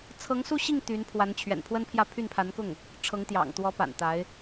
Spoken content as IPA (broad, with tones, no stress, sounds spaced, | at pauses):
t͡sʰ ɤ˧˥ ŋ s u˥˧ ɕ i˥˩ ŋ t̪ y˧˥ n pʰ w a˧˥ n t͡ɕʰ ɥ ɛ̰˨˩ n pʰ w ə˥ n pʰ j ä˥˧ pʰ y˥˩ n pʰ a˧˥ n k ʊ˥˩ ŋ | ʈ͡ʂʰ ɤ˧˥ ŋ t̪ j ɑ̰˨˩ ŋ t̪ w ɔ˧˥ p a̰˨˩ n t̪ a˧˥ ɪ̯